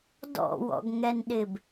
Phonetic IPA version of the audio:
d ɔ̰ w ɔ̰ ɡ ŋ ɛ n ɗ ɪː b

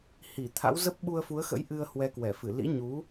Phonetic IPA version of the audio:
h i˧˩ t̪ʰ a̰˧˥ w z ə˦˥ p̚ ɓ u˧ ə̯ f u˨˦ ə̯ x ə̰˧˥ j ʔ ɨ˧ ə̯ h w ɛ˨˦ k w ɛ˧˩ f ɨ˧˩ l ḭ˧˥ ɲ u˨˦

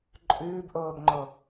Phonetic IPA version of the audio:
ǃʼ ʉː b ʔ oː b ŋ͡ǃ o

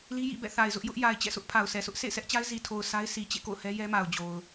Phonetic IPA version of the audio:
l i˦ j ḭ˦˨ b ɛ̰˦˨ θ a˨ ɪ̯ z ʊ˦ ʔ j ʊ˦ ʔ j a˨ ɪ̯ t͡ɕ ɛ̰˦˨ s ʊ˦ ʔ pʰ a˨ ʊ̯ sʰ ɛ˨ s ʊ˦ ʔ sʰ ḛ˦˨ ɪ̯ s ɛ˦ ʔ t͡ɕ a˦ ɪ̯ z i˨ tʰ o˨ ʊ̯ s a˦ ɪ̯ s i˨ t͡ɕ ḛ˦˨ k o̰˦˨ ʊ̯ h ɛ˦ j ɛ˦ m a˨ ʊ̯ d͡ʑ o˨ ʊ̯

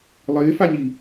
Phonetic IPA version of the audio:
lˠ ɪː f a ɲ i

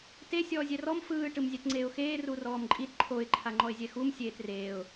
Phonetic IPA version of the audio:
t e sʲ ɔː zʲ ɛ r ɔ m f ɯː ʈ ɯ m zʲ ɛ t ŋ͡ǀ eː ʊ̯ x eː r u r ɔː m ǃʼ i t ǃʰ o ɪ̯ ǃʰ a ŋ͡ǃ ɔ ɪ̯ zʲ ɛ x u m sʲ eː t r eː ʊ̯

